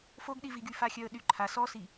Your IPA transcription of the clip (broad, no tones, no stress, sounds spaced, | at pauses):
f o ɡ ɗ i v i ɡ y f a xʲ œ ə̯ ɗ y ǃʰ a s ɔ s i